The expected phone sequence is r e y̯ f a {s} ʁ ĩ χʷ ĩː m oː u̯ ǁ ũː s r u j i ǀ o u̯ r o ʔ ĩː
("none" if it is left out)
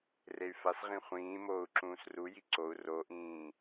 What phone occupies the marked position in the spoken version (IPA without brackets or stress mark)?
s